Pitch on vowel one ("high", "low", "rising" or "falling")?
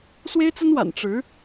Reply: high